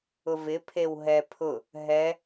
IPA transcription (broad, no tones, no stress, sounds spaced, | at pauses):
ʊ v ɪ pʰ e w ɦ ɛ pʰ ʊ | ɦ ɛ